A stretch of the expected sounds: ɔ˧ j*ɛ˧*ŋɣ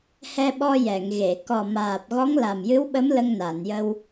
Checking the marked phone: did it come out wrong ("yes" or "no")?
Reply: yes